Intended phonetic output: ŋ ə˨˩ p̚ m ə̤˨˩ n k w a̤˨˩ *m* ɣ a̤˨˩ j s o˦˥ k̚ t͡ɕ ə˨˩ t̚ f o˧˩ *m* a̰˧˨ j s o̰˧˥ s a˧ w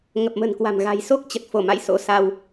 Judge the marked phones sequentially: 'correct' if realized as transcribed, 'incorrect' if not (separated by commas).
correct, correct